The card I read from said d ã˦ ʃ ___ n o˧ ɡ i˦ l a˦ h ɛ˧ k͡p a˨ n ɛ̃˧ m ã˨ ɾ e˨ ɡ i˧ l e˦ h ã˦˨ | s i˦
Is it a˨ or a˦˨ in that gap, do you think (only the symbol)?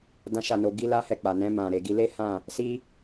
a˦˨